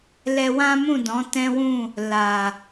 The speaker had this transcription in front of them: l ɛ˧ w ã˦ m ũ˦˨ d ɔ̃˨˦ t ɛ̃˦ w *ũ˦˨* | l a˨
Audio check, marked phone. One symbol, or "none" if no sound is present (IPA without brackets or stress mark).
ũ˦˨